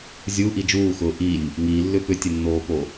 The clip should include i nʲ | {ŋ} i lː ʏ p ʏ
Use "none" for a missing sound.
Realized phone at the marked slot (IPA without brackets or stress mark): ŋ